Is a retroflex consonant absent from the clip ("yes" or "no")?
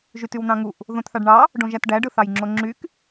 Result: no